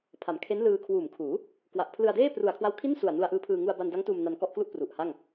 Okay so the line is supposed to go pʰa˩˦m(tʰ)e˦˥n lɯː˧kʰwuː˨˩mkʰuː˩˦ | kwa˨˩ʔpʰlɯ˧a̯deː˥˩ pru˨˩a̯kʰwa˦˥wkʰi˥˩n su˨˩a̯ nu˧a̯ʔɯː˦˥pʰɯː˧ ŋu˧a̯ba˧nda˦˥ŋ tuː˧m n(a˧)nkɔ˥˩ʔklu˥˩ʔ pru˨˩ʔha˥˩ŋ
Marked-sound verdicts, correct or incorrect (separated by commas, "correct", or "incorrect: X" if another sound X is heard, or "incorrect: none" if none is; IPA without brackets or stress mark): incorrect: kʰ, correct